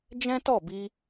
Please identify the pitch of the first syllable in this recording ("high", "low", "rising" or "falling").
high